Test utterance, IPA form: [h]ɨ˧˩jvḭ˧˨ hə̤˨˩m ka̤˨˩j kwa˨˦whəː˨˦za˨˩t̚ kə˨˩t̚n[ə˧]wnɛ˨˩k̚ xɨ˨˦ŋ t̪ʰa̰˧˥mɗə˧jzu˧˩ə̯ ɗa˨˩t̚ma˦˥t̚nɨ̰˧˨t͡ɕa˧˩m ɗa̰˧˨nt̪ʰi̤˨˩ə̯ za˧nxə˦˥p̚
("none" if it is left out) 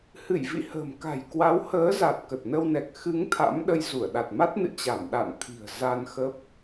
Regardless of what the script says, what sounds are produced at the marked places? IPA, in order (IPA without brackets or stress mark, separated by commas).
h, ə˧